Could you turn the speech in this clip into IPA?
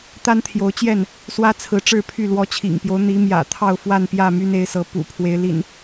t̪ a˦ n t̪ʰ j o˨˦ ʊ̯ t͡ɕ j ɛ˥˨ n | s w ä˦ t͡sʰ ɹ̩˨˦ ʈ͡ʂ ɻ̩˥˨ pʰ y˥˨ l w ɔ˨˦ t͡ɕʰ ḭ˨˩ ŋ p j o˦ ʊ̯ n̪ i˨˦ m j ä̰˨˩ t̪ʰ ɑ˥˨ ʊ̯ f w a˥˨ n p j ä˥˨ m y˦ n e˨˦ ɪ̯ s ɤ˨˦ p ṵ˨˩ pʰ w e˨˦ ɪ̯ l ḭ˨˩ n

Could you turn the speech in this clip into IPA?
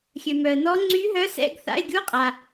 xʲ ø˨ m œ˨ ə̯ n ɔ˧˥ ŋ͡ǀ y˧˥ ɦ œ˧˥ s ɛ̰˧˥˧ ɡ θ a̰˧˥˧ ɪ̯ ɡʲ u˧˥˧ qʼ a˨

